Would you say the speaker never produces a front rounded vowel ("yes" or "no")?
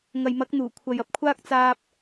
yes